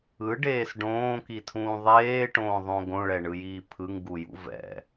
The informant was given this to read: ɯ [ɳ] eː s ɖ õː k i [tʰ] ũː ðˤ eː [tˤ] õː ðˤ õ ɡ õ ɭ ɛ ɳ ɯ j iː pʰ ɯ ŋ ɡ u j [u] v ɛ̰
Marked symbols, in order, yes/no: no, yes, no, no

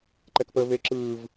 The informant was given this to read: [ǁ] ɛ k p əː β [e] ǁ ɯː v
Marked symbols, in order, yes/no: no, yes

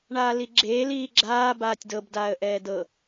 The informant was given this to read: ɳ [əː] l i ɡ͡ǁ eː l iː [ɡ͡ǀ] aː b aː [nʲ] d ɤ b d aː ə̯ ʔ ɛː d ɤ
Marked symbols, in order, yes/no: no, no, no

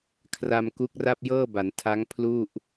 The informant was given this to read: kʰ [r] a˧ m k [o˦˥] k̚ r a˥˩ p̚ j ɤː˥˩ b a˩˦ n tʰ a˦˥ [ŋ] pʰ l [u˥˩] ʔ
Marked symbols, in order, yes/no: yes, no, yes, yes

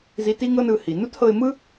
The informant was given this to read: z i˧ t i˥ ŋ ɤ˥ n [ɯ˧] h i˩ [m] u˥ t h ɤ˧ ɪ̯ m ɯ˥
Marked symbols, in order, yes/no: yes, no

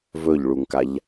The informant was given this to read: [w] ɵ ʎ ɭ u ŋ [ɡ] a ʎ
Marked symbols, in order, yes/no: no, no

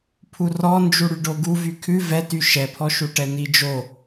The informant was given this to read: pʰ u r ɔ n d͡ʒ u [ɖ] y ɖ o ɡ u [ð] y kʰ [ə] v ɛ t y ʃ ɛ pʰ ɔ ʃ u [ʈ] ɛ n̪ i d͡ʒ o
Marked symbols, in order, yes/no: no, no, no, yes

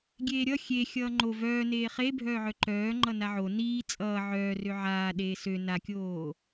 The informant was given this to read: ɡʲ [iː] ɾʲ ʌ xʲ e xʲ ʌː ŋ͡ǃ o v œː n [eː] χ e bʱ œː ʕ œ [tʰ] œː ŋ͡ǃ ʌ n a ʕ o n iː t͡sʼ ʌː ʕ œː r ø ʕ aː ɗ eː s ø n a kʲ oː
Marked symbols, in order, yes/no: no, yes, no

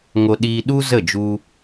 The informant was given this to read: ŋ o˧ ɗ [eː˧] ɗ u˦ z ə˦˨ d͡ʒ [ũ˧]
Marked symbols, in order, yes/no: no, no

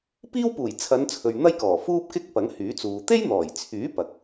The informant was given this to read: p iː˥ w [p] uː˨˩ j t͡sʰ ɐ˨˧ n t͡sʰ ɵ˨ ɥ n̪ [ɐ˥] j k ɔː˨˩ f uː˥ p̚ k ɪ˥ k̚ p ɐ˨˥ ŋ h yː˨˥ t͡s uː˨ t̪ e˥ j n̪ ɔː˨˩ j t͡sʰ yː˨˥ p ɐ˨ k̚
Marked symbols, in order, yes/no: yes, yes

